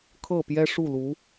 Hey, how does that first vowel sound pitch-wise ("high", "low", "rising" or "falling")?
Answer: falling